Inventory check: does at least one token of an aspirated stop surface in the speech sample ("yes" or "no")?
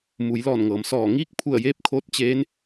yes